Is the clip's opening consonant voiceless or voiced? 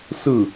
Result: voiceless